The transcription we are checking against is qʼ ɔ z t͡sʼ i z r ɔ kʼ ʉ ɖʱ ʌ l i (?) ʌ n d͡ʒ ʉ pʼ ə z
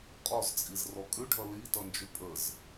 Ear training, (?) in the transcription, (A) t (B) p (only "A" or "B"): A